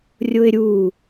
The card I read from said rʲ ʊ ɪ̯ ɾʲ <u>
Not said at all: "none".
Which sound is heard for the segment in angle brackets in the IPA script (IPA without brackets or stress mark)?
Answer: u